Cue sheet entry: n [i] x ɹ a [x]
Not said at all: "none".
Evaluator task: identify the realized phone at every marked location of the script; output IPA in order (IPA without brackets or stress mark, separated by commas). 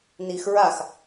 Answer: i, x